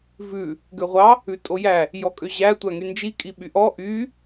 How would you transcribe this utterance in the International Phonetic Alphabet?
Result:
v ʉ | ɡ ø ʁʷ ɑ | ʉ tʼ o j æ | j ɔ kʼ ø ʑ æ tʷ æ ŋ y n d͡ʒ i kʼ i ɓ y ʔ ɔ ʔ y

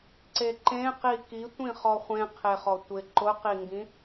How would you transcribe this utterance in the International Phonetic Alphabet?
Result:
ǀ e ǃ ẽ q i k i tʷ ĩ χ ɔ χʷ ẽ qʰ e χ ɔ tʷ ɪ ǃ ʊ q i ŋ ɡ ĩ

